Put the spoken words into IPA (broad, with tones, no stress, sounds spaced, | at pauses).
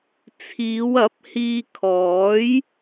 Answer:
t͡sʰ iː˨˧ w ɐ˨˥ p̚ h iː˧ kʰ ɔː˨˥ j